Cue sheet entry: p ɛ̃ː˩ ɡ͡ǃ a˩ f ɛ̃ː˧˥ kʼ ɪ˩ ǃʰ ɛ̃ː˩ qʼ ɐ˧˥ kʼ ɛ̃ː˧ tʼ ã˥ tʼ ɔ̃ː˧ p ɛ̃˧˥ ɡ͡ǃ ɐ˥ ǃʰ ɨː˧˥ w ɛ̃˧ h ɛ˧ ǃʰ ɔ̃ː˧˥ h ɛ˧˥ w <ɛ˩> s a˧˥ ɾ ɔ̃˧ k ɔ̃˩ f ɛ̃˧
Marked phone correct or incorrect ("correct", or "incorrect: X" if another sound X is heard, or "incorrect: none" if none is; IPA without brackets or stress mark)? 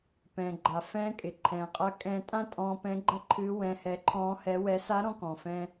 incorrect: ɛ˧˥